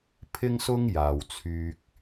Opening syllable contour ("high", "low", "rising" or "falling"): high